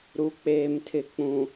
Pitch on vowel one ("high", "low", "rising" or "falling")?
low